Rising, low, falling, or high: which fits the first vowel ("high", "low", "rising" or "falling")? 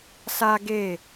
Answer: high